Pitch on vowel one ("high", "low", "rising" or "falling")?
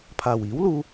low